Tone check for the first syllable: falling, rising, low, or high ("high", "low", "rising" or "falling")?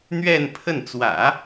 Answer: falling